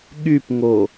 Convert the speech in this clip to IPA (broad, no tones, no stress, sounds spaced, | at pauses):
ɠ y p ŋ o